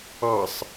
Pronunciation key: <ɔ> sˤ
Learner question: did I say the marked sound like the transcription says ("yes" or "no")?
no